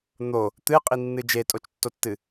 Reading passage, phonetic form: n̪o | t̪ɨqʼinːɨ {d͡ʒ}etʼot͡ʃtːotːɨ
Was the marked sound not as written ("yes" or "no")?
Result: no